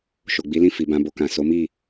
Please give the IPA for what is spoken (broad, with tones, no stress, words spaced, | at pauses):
ʃo˨ɡ͡bi˨˦lĩ˦˨ fi˨bã˧bo˧kã˨ so˨˦mi˦˨